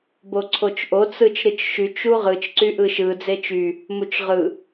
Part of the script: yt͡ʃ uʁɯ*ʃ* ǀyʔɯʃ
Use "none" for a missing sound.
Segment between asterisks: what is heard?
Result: t͡ʃ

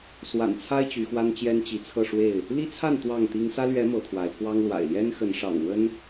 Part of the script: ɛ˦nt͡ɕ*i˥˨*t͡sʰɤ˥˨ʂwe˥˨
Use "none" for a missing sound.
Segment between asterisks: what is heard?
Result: i˨˦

